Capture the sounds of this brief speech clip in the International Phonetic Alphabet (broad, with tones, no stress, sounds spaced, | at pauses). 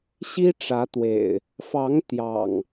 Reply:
ɕ i˦ ʈ͡ʂ ä˨˦ t̪ w ḛ˨˩ ɪ̯ | f ɑ˨˦ ŋ t̪ j ɑ̰˨˩ ŋ